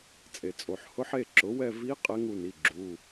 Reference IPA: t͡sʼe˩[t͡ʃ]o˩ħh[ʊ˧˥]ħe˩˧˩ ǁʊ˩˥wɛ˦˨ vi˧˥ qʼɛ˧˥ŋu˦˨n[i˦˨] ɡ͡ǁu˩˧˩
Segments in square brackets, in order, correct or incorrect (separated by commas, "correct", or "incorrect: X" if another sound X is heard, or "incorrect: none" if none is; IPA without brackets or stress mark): incorrect: t͡sʼ, correct, incorrect: i˩˧˩